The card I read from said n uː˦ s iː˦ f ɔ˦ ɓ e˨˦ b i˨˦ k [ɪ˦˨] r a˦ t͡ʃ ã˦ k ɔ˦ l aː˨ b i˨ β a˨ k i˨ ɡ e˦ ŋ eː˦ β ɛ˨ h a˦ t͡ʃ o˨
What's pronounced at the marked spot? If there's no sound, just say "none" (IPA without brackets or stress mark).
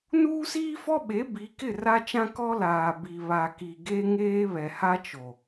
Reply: ɪ˦˨